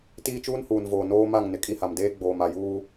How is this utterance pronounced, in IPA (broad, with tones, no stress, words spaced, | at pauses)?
tiː˦t͡ʃuː˦nhuː˨nvoː˨ noː˦ma˦˨ŋ nɪ˨kʼi˦ha˨m deː˦ɡ͡boː˨ma˨juː˦